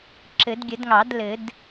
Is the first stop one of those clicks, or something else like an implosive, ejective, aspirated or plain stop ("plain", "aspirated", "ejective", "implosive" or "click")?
click